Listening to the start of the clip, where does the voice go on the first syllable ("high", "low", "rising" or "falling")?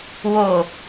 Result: low